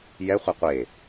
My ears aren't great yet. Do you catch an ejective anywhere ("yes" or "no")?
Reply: no